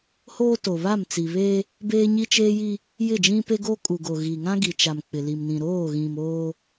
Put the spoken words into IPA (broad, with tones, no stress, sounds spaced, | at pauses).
h oː˦ t o˨ β a˦˨ m t͡s i˨ β eː˦ | b eː˦ ɲ i˦ t͡ʃ eː˦ j i˦ | j ɪ˦˨ d͡ʒ ĩ˦ p e˦ ɡ o˦ kʼ u˨ ɡ o˨ ɣ i˨ ŋ ã˦ ɡ i˨ t͡ʃ a˨ m k͡p ɪ˨ l i˨ m n ĩ˨ ɾ oː˦˨ ɣ ĩ˨ m oː˦